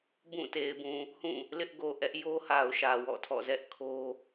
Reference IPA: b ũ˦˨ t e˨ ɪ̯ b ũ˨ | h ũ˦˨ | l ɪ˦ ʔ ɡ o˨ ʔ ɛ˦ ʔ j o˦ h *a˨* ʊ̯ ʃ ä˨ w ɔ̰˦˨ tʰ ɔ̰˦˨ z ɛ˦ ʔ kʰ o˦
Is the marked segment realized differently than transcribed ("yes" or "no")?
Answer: no